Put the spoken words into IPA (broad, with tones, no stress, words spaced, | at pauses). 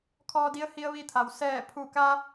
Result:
kʰɔː˧di˧˥ə̯ hi˧ə̯ʋi˧t̪ʰa˩w sɛː˧˩pʰu˧˩ka˧